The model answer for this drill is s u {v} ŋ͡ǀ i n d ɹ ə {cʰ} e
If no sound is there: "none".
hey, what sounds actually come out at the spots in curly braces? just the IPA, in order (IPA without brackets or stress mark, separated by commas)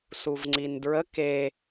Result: v, k